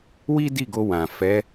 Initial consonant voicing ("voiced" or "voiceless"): voiced